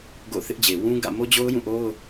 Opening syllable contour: falling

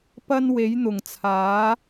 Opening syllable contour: high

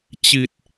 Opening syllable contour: low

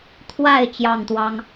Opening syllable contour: falling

